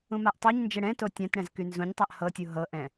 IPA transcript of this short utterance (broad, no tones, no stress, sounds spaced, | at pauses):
ũ m a ʔ tˤ o ɲ n d͡ʒ ɛ ɽ ɛ̃ t o tʲ ã t ɽ ɛ̃ z k y n z ũ ɲ tˤ a ʔ h ɤ tʲ u ɦ ɤ ʔ ɛ̃